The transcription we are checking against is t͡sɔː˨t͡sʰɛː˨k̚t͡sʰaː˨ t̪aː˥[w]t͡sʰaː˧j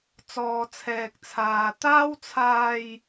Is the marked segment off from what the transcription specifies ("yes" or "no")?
no